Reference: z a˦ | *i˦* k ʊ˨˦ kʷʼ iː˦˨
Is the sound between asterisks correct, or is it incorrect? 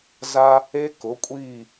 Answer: incorrect